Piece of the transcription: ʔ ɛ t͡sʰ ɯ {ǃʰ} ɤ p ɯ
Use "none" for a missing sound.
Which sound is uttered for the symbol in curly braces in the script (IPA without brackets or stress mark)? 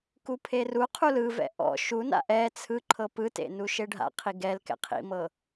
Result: ǃʰ